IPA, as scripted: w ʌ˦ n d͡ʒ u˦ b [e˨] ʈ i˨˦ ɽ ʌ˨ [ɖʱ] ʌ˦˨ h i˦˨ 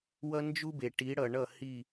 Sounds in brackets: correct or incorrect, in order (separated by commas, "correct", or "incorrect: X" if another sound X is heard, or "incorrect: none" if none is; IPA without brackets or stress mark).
correct, incorrect: ɳ